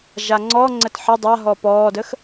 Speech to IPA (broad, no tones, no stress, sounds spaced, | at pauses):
ʒ a ŋ͡ǀ ɔ ŋ͡ǀ ə t ħ ə dˤ a ɦ ɔ p ɔː d ə x